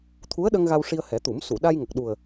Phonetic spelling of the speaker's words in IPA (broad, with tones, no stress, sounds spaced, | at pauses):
t̪ʰ u˧˥ ə̯ ɗ ə˧ ŋ ɣ a˧ w ʂ i˧ ə̯ h ɛ˨˩˦ t̪ u˨˩˦ m s u˨˩˨ ɗ a˧ j ŋ ə˨˩ k̚ ɗ u˨˩ ə̯